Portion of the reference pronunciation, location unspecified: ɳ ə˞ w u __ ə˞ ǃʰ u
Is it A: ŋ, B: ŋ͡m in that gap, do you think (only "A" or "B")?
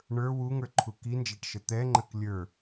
A